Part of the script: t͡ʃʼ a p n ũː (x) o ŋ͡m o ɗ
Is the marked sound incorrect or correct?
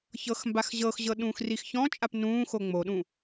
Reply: correct